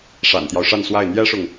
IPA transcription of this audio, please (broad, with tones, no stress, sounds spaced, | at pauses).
ʂ a̰˨˩ n t̪ j ɑ˦ ʊ̯ ʂ a˥˧ n s w a˥˩ ɪ̯ n̪ j ɛ˥ ʂ ʊ˨ ŋ